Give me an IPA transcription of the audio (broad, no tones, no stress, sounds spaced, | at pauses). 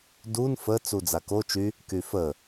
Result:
d u n f ə t͡s u d͡z a k o t͡ʃ y | k y f ə